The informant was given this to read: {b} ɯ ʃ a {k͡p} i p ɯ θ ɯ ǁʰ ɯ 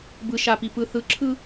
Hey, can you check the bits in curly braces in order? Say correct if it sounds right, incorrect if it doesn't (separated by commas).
correct, incorrect